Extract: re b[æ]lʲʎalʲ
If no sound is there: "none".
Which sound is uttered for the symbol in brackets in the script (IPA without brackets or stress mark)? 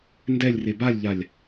a